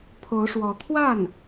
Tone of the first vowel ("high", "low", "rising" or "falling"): rising